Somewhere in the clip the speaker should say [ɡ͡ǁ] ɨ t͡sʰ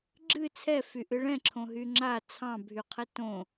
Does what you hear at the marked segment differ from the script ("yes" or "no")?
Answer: no